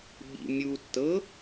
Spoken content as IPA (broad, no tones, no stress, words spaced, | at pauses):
ɓḭ mʲutːɤ